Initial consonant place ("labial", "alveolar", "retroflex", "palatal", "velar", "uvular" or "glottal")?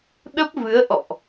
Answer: alveolar